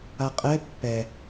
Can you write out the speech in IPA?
a qʼ ɛ pː ɛ

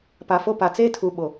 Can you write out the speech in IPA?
p a˨ f o˦ p a˨ t͡s eː˦ tʰ u˨ ɓ o˨

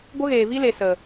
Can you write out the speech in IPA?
ɡʷ ə˦ ɣ eː˨ v i˦ l e˨ s ə˨

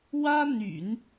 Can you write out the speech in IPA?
w ä˥ n̪ y̰˨˩˦ n

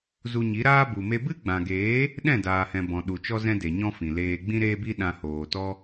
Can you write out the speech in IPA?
z u˧ ɲ i˨˦ ɾ aː˦ b u˨ m e˧ b ɨ˦ ɡ͡b ã˨ ɡ eː˨˦ | ɗ ɛ̃˦˨ d aː˨ h ɛ̃˨ b ɔ̃˨ ɗ u˨ t͡ʃ ɔ˦ z ɛ̃˦ d e˨ ɲ ɔ̃˦ f ĩ˨ l eː˧ ɡ͡b ĩ˦ ɾ eː˦ b i˦ ɗ ã˧ h oː˨ t ɔ˦

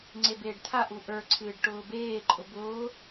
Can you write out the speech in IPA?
ŋ͡ǀ e b eː ɖ t̪ʰ a ʔ u ʔ ə˞ ǀʰ ɨː ɖ ʈ ʊː b eː ǃʼ ʊ b ʊː

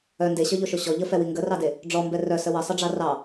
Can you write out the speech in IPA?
œ n d e ɕ œ ʎ o ʃ o ɕ ɔ ʎ ə f ɛ w i ŋ ɡ ə r ɑ d e | ɖ͡ʐ ɔ m b ɛ r œ s ə w ə sˤ ə ɖ͡ʐ ɑ r ɑ

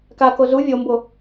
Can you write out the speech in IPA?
k a k o z u vʲ o m b o

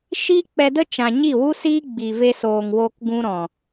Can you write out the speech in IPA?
ʃ iː˦ k͡p ɛ˧ d ə˦ t͡ʃ ã˨ ɲ i˦˨ w u˦ s iː˦ ɡ͡b i˨ v e˧ s oː˨ ŋ w oː˧ k ɡ ũ˧ ɾ ɔ̃˨

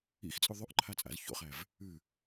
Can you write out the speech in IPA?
ḭ x t͡sʼ ʉ ðˤ ʉ ʔ ǃʰ a t͡sʼ a̰ z ç o̰ χ æ v | ʉ

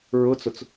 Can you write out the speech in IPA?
ɹ ʊ t͡s ʊ t͡s

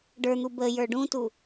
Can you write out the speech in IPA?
ɖ ə˞ n̪ u b ə j ə˞ ɖ ũ t u

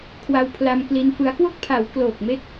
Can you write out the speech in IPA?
kʰ w a˧ w pʰ l a˧ m k l i˧ n f ɯ˦˥ a̯ k w o˥˩ k̚ pʰ a˩˦ w k l oː˨˩ k̚ m e˦˥ k̚

